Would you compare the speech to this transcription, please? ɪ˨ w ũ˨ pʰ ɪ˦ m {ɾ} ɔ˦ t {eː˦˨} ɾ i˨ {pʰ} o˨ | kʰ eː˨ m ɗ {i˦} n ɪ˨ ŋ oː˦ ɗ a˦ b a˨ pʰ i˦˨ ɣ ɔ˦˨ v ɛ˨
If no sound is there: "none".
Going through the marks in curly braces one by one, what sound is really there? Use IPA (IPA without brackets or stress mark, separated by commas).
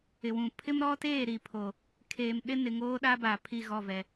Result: ɾ, eː˦˨, pʰ, ɪ˦